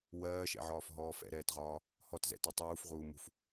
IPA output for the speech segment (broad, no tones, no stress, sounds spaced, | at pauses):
w ɜː ʃ ɛ̰ ʕ ɒː f ɦ ɔː f ɛ̰ ɾ ɛː t ʁ ɒː | h ɔ t z ɛ̰ t ɔ tˤ uː f ʁ uː m ṳ f